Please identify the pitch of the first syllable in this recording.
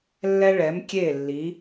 high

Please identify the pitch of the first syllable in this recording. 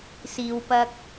low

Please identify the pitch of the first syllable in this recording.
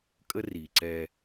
high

